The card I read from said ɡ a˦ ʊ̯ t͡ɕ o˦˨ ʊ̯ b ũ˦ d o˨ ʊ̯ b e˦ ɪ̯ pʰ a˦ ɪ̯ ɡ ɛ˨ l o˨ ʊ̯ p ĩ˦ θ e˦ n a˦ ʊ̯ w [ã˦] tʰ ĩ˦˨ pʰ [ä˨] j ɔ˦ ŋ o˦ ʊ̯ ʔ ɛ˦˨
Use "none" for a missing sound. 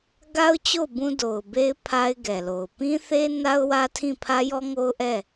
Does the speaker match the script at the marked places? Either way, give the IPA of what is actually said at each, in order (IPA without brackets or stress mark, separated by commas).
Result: ä˦, ä˦